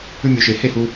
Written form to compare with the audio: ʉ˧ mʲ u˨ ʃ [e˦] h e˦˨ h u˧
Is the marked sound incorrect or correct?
incorrect